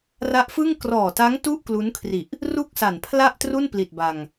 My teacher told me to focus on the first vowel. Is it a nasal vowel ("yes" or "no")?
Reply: no